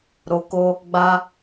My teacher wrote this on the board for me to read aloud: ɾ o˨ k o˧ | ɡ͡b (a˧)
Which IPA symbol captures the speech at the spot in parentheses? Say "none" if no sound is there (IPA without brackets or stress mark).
a˧